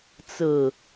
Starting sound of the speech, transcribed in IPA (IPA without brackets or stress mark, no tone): t͡s